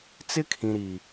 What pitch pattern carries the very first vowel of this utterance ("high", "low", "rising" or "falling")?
high